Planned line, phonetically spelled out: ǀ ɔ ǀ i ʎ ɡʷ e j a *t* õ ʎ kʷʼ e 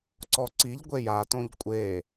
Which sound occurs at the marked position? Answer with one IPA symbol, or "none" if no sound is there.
t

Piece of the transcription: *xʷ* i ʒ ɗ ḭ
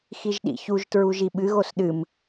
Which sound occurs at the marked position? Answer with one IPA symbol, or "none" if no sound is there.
x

